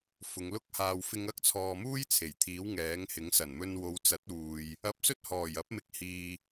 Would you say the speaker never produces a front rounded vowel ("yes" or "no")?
yes